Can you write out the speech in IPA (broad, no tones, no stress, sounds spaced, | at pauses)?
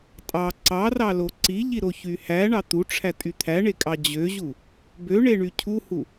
tʼ ɑ ǀ ɑ r ɑ l o ǀ i ʎ i ɾ o ç y h æ ɳ ɑ t̪ u ʈ͡ʂʰ æ tʼ y t̪ʰ æ ɳ e kʼ ɑ d͡ʑ ø ʑ u | b ø ɳ e ɳ y cʰ u h u